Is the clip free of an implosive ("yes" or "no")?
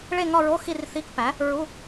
yes